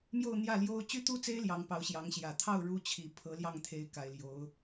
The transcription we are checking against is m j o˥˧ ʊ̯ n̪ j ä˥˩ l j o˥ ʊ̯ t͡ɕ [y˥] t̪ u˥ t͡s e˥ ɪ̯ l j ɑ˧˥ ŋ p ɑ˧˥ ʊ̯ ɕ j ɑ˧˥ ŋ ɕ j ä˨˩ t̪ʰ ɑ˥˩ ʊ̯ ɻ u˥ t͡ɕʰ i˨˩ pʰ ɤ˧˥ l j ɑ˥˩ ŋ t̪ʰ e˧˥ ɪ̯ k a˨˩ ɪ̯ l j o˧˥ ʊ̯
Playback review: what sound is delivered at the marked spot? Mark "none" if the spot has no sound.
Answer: y˥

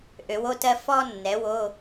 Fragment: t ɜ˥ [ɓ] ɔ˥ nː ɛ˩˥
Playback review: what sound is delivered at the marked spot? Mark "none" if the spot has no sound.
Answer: f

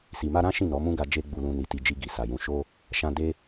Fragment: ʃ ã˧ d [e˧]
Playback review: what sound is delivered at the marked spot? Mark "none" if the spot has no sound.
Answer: e˦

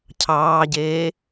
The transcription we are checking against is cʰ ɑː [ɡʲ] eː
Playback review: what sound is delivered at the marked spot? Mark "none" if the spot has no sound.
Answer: ɟ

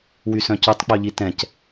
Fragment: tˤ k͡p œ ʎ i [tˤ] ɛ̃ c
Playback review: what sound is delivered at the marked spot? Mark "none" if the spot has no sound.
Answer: t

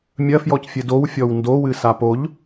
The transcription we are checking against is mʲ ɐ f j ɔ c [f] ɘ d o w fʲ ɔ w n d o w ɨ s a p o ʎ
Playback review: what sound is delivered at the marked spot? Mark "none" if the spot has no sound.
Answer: fʲ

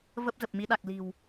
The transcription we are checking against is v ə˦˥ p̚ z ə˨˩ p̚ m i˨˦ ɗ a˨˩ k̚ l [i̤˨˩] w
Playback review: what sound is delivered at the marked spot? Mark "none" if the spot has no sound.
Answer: i̤˨˩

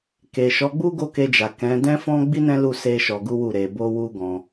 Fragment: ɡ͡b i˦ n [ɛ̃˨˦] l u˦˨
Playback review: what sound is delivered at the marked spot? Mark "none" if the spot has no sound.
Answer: ɛ̃˦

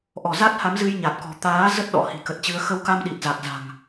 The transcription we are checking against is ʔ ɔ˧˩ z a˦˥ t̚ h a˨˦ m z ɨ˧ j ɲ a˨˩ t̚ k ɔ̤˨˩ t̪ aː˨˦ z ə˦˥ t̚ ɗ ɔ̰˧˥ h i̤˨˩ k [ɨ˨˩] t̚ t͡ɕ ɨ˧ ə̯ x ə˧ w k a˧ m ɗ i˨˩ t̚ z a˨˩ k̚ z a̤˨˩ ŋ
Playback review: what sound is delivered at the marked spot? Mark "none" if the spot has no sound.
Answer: ə˨˩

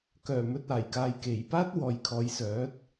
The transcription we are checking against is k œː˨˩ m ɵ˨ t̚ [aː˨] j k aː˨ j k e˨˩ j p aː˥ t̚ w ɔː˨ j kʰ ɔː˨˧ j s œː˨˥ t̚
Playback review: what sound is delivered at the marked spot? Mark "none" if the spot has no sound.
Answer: aː˨˩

